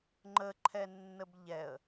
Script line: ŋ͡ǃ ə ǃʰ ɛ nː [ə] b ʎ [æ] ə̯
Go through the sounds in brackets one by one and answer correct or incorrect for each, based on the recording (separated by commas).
correct, incorrect